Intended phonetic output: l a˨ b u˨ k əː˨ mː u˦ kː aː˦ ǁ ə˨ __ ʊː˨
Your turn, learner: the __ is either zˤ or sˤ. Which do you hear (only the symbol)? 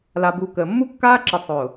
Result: sˤ